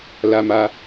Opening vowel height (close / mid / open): open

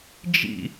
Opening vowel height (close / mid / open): close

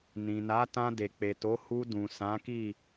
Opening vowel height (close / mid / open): close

